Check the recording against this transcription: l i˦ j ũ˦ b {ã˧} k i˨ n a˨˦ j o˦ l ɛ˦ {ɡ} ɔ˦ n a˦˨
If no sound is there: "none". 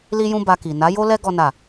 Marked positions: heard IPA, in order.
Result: a˧, ɡ

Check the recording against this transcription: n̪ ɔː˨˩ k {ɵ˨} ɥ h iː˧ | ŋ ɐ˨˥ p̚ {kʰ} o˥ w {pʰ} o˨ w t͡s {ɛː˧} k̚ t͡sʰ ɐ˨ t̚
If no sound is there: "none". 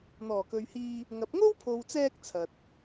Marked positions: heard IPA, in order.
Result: ɵ˨, ŋ, pʰ, ɛː˧

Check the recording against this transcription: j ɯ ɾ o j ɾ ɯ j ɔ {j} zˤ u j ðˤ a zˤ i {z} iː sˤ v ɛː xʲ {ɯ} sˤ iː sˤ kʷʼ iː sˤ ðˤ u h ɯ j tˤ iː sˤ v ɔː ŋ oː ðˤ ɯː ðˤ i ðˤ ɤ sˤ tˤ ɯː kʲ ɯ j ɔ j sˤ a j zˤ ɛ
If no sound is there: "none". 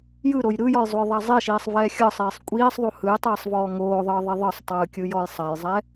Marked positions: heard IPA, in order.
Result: j, ʃ, ɤ

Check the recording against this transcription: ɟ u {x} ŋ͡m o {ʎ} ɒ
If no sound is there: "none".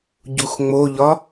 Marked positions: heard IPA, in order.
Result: x, ʎ

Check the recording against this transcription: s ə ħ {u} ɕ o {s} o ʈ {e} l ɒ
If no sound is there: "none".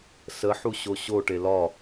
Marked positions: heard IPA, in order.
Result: u, ɕ, e

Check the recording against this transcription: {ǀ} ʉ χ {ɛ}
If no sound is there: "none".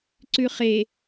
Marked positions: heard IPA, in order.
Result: ǀ, e

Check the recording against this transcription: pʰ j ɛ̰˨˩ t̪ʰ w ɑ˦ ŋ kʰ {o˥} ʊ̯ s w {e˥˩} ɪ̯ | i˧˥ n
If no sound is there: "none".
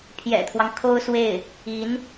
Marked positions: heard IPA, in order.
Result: o˥, e˥˩

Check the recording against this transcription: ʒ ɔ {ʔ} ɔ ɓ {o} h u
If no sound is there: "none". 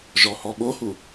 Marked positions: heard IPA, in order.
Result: h, o

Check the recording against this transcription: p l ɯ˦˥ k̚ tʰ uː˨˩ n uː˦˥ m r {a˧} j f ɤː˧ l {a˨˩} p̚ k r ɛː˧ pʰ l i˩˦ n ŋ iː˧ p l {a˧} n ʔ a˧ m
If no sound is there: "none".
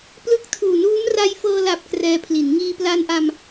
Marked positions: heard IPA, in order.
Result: a˧, a˨˩, a˧

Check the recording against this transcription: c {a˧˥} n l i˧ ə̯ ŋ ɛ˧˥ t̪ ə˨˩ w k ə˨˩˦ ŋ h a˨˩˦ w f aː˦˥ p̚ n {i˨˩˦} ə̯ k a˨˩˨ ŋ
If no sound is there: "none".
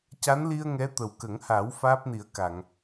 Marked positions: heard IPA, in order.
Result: a˧˥, i˨˩˦

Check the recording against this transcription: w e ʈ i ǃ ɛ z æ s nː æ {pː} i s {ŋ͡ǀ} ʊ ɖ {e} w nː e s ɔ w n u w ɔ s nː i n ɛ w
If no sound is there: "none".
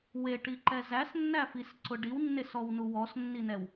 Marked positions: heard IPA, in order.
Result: f, ǀ, i

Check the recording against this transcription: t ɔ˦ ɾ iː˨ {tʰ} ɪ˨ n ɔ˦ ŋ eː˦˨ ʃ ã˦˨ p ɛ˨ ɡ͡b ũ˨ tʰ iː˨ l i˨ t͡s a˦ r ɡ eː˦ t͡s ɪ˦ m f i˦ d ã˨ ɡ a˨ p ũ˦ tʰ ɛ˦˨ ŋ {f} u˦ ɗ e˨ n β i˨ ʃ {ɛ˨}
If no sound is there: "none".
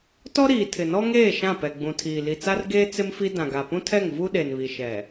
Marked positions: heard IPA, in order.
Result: tʰ, v, ɛ˨

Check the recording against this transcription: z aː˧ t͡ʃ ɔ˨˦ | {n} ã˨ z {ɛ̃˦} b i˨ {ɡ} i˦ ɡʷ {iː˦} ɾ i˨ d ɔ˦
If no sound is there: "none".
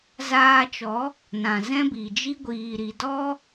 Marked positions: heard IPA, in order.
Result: n, ɛ̃˦, d͡ʒ, iː˨

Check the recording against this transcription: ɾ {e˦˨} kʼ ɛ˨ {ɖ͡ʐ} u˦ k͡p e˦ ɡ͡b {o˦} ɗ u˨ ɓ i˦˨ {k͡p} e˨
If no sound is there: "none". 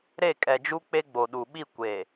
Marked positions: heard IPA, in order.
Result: e˦˨, d͡ʒ, o˨, kʷ

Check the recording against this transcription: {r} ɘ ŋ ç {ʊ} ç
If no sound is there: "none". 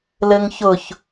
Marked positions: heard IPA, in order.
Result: l, ʊ

